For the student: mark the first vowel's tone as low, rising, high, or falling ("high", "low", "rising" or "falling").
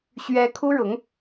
high